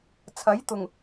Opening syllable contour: rising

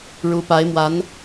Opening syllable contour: rising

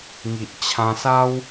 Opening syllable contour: low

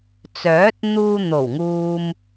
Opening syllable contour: rising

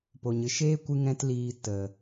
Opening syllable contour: low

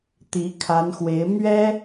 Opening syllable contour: rising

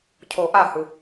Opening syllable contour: low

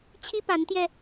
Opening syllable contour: high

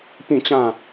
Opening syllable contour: falling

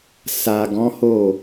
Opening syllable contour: low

